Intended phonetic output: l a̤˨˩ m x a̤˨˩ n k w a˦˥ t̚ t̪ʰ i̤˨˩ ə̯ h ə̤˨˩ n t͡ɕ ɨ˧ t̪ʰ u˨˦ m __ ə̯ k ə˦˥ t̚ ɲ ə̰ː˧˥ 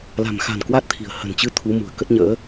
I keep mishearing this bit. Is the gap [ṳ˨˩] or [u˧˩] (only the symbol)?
ṳ˨˩